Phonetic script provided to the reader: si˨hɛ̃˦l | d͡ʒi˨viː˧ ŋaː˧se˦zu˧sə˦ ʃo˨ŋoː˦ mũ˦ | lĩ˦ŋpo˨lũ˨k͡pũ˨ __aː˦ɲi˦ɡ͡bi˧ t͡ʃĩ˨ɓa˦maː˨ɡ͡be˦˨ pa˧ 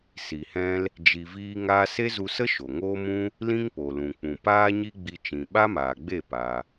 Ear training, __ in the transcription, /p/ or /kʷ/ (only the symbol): p